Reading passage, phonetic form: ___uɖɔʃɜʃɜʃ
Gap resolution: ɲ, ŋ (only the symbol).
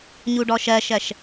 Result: ɲ